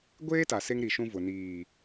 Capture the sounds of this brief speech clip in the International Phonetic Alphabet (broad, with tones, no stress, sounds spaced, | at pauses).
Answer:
ɡʷ eː˦ t a˨ s e˦ ŋ ɾ i˨ ʃ ũ˦ v ʊ˨ n iː˨